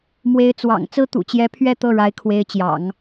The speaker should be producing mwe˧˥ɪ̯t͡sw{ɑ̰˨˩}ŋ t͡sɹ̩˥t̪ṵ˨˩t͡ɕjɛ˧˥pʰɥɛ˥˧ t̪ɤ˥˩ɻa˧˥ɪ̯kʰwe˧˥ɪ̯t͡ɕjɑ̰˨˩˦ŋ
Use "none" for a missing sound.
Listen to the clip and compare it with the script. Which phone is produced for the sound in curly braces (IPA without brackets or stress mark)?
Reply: ɑ̰˨˩